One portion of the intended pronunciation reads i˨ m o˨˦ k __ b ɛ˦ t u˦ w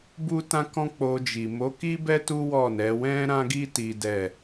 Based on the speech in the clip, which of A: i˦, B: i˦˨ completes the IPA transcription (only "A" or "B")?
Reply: A